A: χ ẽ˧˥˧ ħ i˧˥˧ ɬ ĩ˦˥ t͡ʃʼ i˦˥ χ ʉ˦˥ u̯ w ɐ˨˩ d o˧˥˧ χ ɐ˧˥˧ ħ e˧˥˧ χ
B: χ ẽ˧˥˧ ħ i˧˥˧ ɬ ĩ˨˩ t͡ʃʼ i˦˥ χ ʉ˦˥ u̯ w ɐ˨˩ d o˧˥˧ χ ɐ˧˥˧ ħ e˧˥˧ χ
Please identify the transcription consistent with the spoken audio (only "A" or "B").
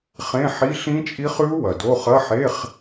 A